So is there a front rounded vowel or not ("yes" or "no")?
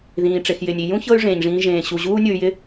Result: yes